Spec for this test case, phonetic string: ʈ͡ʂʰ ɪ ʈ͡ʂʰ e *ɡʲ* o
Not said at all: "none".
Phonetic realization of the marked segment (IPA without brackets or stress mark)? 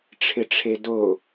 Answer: d